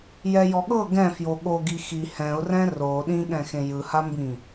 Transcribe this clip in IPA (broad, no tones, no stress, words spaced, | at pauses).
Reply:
jɛjɔɠɤ ɡɛ̃ fjoɠoɡi xi hɛ̃ʊ̯rɛ̃ ro ɗĩɠɛ̃xẽ jɯhambĩ